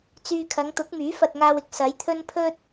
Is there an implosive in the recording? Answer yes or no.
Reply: no